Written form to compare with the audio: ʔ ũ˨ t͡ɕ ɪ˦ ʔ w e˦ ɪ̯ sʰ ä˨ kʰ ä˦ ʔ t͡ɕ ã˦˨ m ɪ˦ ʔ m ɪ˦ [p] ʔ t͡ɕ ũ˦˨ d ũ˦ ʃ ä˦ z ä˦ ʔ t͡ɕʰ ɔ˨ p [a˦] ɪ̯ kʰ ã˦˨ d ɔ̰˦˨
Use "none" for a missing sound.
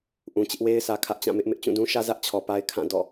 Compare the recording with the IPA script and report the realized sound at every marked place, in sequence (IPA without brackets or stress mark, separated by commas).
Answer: none, a˦